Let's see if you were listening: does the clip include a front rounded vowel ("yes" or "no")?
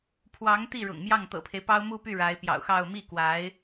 yes